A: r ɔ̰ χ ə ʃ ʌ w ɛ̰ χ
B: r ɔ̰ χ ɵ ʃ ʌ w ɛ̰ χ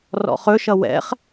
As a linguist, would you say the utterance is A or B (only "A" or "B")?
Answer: B